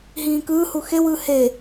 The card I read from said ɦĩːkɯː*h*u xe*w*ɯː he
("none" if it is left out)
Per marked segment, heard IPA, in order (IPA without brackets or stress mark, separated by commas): h, w